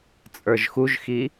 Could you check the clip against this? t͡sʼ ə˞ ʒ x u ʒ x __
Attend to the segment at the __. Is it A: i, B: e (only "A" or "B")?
A